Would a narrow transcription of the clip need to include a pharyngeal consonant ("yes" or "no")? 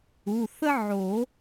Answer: yes